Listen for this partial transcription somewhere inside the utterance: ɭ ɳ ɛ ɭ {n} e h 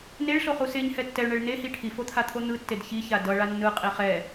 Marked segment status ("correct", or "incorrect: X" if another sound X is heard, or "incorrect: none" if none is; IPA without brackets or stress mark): correct